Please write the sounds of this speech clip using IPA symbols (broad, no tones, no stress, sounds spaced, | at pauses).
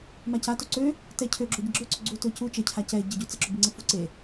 m a c a t o ǀ ø | t ɛ cʰ ø ɡ͡ǁ o ɟ ə ɡ͡ǁ ø ǀ ø ɡ͡ǀ u t ø c u t͡ʃ ə cʰ a c ɛ ɟ ə ɟ u t͡s ə ǁ ʊ b i ŋ͡ǀ ə f u ǀ e